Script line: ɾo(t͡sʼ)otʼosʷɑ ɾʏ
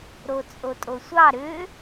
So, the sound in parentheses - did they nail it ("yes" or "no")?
yes